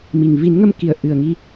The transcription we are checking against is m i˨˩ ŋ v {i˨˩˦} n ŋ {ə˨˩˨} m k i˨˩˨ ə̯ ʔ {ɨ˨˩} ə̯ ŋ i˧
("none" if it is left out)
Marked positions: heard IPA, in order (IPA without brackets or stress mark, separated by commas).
i˨˩˦, ə˧, ɨ˨˩